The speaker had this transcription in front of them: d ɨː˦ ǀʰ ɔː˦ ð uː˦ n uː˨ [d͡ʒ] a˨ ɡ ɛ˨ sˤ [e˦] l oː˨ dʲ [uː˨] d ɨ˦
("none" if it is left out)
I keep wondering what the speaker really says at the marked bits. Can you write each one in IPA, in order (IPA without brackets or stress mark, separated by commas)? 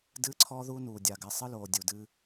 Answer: dʲ, ɨ˦, u˨